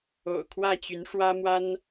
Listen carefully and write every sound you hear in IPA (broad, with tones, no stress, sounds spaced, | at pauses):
o̰˨˩ ʊ̯ kʰ w ä˥˩ t͡ɕ y˧˥ n ʂ w ä˥ m w a˥ n